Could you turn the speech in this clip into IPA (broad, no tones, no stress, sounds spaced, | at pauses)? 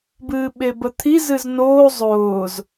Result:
b ɨː ɓ e b ə t̪ʰ i z ɨ z n oː zˤ ʊː z